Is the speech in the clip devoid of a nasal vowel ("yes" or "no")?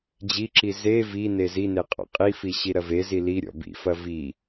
yes